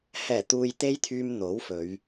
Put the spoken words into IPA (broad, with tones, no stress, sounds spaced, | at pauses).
h ɛː˨˩ t̪ uː˨ j t̪ e˧ j t̪ʰ yː˨ m n̪ o˨˥ w f ɵ˨˧ ɥ